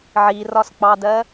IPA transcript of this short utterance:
ʕ i r ɒ s k͡p ɑ d ɜ

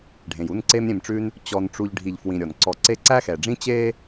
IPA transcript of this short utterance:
ɖʱ ẽ˩ j u˦ n ǀ e˦ m ɾʲ ẽ˨ m ʈ͡ʂ ʉ˦ n | t͡ɕ ɔ˨ n ʈ͡ʂ u˨ ʎ ɖʱ i˨ ʎ f w ĩ˨ ɾʲ ɔ˩ n ǀ ɔ˨ ǀ e˦ ǀ æ˥ x ɛ˩ ɖ͡ʐ ĩ˥ t͡ɕ e˥

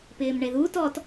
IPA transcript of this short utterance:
p ɪː m ɳ e ð u t ɔ t

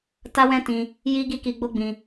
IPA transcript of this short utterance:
t a˦ w ɛ̃˦ t ĩ˧ | j i˦ ɡ i˦ k i˧ ɡ͡b o˦ ɡ͡b ĩ˧

